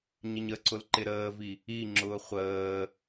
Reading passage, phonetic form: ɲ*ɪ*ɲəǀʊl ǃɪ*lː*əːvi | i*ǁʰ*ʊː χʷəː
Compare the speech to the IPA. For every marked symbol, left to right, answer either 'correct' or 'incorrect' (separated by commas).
correct, incorrect, incorrect